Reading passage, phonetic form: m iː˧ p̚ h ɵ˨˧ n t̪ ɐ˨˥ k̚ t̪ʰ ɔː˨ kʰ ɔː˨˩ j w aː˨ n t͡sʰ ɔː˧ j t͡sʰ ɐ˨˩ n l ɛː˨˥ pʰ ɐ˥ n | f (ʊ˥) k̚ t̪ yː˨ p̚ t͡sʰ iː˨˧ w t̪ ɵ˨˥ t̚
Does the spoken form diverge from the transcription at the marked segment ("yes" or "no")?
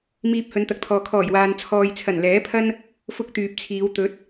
no